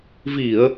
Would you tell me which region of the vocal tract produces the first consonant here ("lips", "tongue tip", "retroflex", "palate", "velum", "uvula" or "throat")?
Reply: lips